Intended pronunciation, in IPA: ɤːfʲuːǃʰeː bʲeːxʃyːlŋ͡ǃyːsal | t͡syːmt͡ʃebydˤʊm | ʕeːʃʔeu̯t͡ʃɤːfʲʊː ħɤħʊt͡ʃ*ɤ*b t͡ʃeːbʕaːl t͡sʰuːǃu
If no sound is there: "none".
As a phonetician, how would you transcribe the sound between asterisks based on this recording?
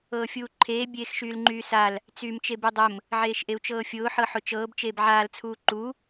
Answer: ɤː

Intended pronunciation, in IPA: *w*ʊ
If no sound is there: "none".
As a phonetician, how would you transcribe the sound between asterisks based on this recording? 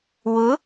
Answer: w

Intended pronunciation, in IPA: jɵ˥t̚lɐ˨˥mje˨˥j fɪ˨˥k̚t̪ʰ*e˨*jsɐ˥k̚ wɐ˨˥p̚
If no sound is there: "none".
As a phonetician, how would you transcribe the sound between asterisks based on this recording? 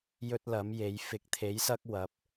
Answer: e˨˥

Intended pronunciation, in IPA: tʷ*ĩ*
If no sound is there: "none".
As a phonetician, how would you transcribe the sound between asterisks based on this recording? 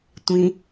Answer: ĩ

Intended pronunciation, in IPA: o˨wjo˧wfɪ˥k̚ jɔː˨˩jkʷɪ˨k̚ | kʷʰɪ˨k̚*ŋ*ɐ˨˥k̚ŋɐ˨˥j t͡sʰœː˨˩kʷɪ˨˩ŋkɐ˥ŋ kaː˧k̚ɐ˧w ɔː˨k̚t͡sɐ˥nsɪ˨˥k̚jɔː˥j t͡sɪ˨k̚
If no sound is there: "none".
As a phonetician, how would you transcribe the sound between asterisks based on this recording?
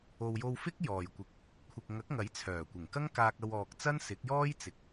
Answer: ŋ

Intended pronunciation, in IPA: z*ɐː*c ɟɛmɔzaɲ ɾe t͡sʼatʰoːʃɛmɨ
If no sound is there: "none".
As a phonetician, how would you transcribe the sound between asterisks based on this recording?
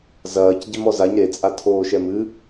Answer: ɐː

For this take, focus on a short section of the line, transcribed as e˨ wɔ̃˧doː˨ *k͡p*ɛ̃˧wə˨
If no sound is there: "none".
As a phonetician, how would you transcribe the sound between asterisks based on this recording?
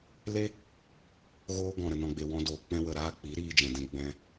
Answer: k͡p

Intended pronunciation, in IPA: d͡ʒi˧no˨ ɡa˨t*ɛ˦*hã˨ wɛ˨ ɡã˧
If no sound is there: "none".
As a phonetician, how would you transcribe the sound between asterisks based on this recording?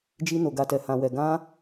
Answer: ɛ˨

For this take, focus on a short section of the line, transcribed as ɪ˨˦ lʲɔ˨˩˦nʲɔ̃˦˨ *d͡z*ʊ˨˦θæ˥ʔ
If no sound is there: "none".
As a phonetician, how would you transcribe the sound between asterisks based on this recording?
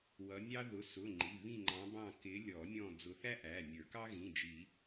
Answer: d͡z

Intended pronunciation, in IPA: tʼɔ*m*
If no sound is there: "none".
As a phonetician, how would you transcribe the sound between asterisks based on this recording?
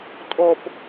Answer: p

